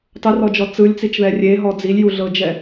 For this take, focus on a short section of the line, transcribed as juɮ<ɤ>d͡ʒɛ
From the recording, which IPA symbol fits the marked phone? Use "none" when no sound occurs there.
ɤ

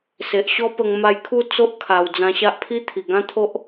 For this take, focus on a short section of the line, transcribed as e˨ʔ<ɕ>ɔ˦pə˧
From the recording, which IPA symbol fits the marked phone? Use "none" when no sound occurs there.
ɕ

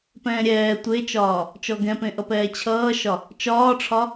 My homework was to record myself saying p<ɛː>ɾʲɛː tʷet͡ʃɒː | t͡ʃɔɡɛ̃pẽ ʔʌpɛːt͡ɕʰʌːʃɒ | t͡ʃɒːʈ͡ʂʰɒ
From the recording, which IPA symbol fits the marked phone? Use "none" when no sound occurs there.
ɛ̃ː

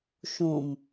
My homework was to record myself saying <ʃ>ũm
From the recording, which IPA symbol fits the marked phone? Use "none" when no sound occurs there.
ʃ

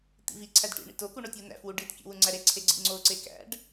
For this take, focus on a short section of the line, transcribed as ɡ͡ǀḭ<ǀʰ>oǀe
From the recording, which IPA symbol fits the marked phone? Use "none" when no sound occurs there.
ŋ͡ǀ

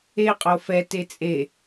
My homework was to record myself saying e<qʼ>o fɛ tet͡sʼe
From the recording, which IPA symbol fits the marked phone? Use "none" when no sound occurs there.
qʼ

